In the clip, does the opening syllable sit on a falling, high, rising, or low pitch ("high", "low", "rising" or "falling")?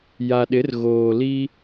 low